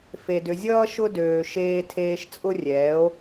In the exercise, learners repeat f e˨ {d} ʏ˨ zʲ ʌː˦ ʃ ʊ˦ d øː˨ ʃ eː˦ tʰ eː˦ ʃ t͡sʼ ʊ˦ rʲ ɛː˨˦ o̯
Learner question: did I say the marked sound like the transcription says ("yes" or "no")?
yes